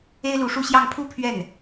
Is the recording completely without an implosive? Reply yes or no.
yes